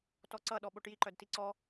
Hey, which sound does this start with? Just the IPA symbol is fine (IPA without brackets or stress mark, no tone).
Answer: t